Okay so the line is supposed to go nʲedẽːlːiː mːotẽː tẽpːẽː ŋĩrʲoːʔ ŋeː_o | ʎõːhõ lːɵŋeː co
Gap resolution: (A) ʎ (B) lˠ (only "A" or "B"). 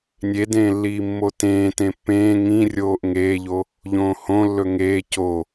A